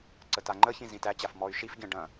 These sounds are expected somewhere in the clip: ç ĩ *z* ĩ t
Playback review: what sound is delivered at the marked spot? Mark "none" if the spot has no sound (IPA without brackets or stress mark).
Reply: z